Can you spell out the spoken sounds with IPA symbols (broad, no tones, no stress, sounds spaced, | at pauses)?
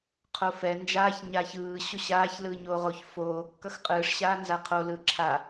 qʰ o f ɛ n d͡ʒ aː ç ɲ a ç ɯː ɕ o ɕ aː ç l ɯː ɲ oː ʁ o ç f oː kː ʌ x qʼ ɯː ʂ ɕ aː n z a qʰ o l ɯ ǁʰ a